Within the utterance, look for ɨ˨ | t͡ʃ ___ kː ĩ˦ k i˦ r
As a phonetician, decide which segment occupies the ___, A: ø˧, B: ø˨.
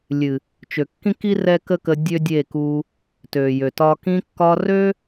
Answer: B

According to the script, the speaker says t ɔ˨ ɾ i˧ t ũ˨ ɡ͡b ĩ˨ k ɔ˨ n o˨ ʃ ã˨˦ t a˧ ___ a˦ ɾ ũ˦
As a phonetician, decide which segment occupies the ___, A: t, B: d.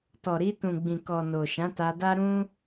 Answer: B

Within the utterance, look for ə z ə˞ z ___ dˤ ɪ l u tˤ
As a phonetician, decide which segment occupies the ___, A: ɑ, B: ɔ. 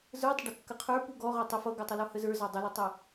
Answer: A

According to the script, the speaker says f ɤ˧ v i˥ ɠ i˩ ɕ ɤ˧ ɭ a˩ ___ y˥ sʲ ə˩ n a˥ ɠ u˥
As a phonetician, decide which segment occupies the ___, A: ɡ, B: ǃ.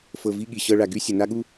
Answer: A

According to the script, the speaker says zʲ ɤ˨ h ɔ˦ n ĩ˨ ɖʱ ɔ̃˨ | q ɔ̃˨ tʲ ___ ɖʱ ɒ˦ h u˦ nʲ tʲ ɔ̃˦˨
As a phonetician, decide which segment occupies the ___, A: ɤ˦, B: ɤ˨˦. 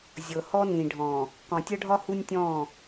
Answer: A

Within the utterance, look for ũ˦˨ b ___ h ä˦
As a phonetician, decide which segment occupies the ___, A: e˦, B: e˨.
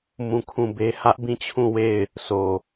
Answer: A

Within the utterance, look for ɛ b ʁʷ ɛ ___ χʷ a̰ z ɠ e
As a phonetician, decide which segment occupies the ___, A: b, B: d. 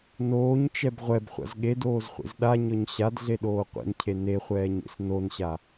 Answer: A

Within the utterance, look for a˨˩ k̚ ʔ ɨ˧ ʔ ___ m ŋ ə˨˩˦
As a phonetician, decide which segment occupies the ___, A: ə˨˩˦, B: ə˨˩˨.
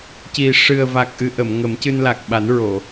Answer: B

